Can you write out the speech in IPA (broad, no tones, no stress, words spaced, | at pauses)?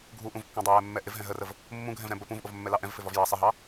ɡʱuʔũvkːɑ̃ dˤɛjɛmːɛ ʔɪvɦɛ̃ ɦərəv | mːũɡʱɛ̃vɾɛ̃ bə pũvʔʊvmːɛlɑ ʔɛ̃vfɪvɒv jɑ sˤɪɦɑ